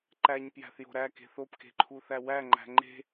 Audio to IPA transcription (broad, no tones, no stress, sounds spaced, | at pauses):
ǃ æ ɲ p j æ̤ θ j o̤ ɾ æ k e̤ θ o p k e̤ ǃʰ u θ æ w æ ŋ͡ǃ æ̤ ŋ͡ǃ e̤